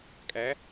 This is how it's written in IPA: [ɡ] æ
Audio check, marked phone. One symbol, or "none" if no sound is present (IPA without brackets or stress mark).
kʼ